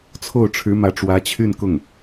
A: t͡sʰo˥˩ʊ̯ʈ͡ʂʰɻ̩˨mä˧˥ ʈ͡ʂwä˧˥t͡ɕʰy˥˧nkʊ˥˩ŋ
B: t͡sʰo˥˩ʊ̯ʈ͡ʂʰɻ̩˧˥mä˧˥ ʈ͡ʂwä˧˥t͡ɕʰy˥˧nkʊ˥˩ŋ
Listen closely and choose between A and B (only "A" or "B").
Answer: B